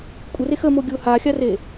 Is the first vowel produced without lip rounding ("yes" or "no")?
yes